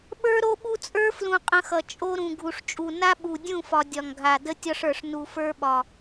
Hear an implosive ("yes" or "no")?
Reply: yes